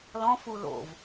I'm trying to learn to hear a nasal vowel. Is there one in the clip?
yes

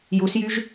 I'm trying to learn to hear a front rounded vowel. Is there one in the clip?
yes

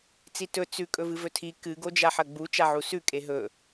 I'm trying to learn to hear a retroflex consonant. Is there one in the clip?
no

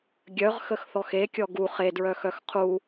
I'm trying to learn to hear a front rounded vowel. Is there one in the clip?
yes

